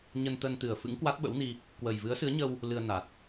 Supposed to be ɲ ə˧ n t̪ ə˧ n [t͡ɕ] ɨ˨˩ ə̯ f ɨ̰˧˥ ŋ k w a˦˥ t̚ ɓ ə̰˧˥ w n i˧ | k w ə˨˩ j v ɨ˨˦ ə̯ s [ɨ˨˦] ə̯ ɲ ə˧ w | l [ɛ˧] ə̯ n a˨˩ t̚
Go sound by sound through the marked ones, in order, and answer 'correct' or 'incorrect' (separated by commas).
incorrect, correct, incorrect